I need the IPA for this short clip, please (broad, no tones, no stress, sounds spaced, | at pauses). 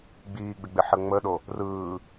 ɡ͡b iː ɡ͡b ɪ ɡ͡b ɪ ħ ə ŋ͡m ə ɗ o | r ɯː